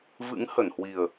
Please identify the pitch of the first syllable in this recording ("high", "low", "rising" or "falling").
rising